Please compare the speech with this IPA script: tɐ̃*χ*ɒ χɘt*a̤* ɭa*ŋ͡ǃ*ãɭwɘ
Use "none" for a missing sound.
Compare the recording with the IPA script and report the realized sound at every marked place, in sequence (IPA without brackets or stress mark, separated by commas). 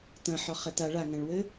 ħ, a, ŋ